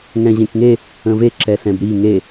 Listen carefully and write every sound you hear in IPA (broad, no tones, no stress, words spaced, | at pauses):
ŋɛ̃ʑẽkŋe | ə̃ve ǁɛsɛ̃bɾi ŋe